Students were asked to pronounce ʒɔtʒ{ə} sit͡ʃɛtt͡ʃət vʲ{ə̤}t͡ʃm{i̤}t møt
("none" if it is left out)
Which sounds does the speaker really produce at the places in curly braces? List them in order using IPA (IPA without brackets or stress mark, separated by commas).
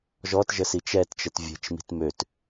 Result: ə, ə̤, i̤